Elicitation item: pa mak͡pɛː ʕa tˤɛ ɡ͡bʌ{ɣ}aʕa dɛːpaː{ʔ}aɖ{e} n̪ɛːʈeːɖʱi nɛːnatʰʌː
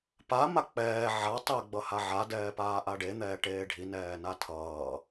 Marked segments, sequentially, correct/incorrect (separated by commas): incorrect, correct, correct